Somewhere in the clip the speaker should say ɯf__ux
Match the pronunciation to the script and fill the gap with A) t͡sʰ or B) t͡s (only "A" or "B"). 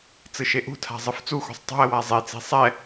B